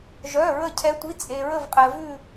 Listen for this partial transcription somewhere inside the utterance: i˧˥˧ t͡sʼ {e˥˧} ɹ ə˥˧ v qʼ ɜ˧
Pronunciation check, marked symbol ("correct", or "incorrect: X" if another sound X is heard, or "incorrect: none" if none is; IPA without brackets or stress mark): incorrect: e˧